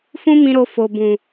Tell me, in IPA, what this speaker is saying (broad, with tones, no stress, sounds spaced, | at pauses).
f ũ˦ m ĩ˧ ɾ o˧ f o˨ b ũ˨